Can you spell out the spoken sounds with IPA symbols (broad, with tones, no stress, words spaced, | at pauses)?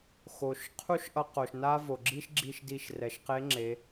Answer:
xo˩ʃ qʰu˥ʃʔʌ˧qo˩ʃ na˥ vo˩ɡ͡ǁi˥ʃɡ͡ǁi˧ʃdi˧ʃ rɛ˩ʃqe˧˥ŋ͡ǁe˩˧